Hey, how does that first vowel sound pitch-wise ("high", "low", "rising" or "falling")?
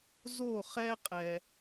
falling